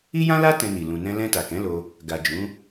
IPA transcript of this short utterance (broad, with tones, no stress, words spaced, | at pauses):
i˦jã˦la˦ tɛ̃˧ni˨ lũ˨ nɛ̃˧lɛ̃˧ ta˨kɛ̃˨˦lo˧ | ɡa˨ d͡ʒũ˨˦